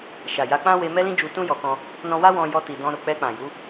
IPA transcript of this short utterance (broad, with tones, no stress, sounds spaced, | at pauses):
ʃ a˨ j a˨˦ k͡p ã˦ w e˧ m ɛ˦ l ĩ˦ d͡ʒ u˧ t ũ˦ j ɔ˧ k ɔ̃˦ | n ɔ̃˧ w a˦ w ɔ̃˧ j ɔ˧ t i˨ d ɔ̃˧ ɾ o˨ k͡p ɛ˧ k͡p ã˨ j u˨˦